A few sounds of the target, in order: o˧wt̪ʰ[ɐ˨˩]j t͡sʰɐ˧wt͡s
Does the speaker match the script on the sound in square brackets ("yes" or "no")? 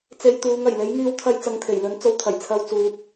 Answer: yes